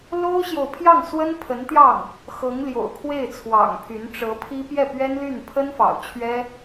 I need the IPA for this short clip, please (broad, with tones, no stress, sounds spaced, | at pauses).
l o˥ ʊ̯ ɕ j o˨ ʊ̯ pʰ j ɑ˥˩ ŋ s w ə˥ n pʰ ə˧˥ n t̪ j ɑ˥˩ ŋ | x ɤ˧˥ ŋ l j o̰˨˩ ʊ̯ kʰ w e˥˩ ɪ̯ t͡sʰ w ɑ̰˨˩ ŋ pʰ y˧˥ n ʈ͡ʂ ɤ˧˥ pʰ i˥ p j ɛ˥˩ p ɥ ɛ˥ n l y˥˩ n pʰ ə˥ n f ɑ̰˨˩ ʊ̯ t͡ɕʰ ɥ ɛ˥